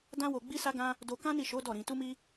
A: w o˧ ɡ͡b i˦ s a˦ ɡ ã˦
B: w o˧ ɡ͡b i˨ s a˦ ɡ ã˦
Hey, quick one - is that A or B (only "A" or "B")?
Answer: A